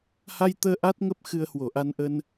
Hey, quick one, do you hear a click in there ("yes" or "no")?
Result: no